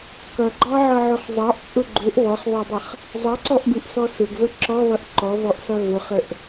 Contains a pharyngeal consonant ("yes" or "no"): yes